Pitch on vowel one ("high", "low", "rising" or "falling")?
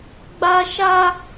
high